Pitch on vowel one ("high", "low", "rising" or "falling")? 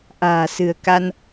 low